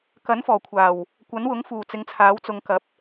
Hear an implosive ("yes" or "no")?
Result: no